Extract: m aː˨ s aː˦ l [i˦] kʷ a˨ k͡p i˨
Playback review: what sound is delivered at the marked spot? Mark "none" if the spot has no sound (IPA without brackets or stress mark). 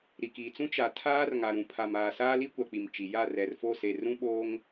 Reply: i˦